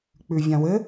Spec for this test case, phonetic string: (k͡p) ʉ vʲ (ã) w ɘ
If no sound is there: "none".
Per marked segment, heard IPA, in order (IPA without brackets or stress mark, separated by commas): k͡p, ã